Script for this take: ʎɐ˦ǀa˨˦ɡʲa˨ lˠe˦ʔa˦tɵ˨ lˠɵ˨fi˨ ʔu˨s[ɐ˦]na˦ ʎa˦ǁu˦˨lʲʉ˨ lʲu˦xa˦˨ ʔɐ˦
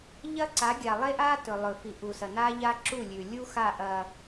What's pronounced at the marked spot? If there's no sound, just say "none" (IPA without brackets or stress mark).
ɐ˨